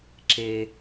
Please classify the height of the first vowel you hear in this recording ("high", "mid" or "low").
mid